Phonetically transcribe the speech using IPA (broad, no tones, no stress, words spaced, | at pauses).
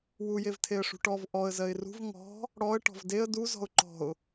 wujev tʰeə̯ʂṳʈɔv ʔɔə̯ zɜɪ̯rṳv ŋɔ̤ | ɽɔə̯ ʈɔ̤vdeə̯ du zɔ̤ʊ̯ǃɔ̤ʊ̯